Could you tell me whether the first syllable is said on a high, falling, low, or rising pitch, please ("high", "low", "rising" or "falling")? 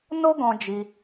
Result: high